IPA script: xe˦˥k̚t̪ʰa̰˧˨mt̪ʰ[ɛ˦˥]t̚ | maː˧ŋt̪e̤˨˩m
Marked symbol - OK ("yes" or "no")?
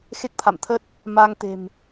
no